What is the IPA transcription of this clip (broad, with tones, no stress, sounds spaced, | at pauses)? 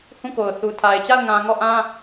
h ũ˦˨ k o˨ ʊ̯ θ u˨ tʰ a˨ ɪ̯ t͡ɕ a˦˨ ʊ̯ ŋ ã˨ ŋ ɔ˦˨ ʔ ã˦